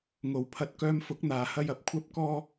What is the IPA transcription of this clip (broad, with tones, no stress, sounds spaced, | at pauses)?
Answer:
ŋ o˨ w pʰ ɐ˧ t̚ k œː˧ m f ʊ˨˥ k̚ n̪ aː˨ h ɐ˥ j ɐ˧ p̚ kʷʰ ɐ˥ p̚ k ɔː˥